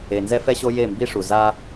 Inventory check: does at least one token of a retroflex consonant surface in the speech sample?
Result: yes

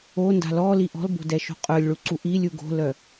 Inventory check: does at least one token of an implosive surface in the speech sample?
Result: no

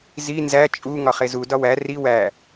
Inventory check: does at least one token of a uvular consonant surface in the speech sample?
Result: yes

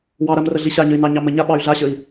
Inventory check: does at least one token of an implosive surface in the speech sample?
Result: yes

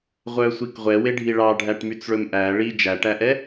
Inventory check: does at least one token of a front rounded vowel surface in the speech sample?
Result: yes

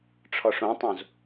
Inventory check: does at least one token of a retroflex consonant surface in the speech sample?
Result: yes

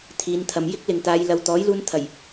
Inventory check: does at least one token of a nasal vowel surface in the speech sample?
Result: no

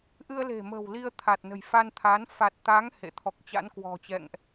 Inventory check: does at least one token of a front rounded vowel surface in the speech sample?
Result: no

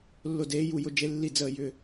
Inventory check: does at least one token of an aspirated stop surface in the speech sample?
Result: no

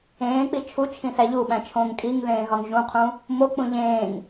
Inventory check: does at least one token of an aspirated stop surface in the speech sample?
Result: yes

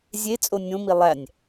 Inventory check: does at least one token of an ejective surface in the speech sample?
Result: yes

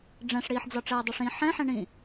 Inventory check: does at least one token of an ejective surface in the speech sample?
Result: no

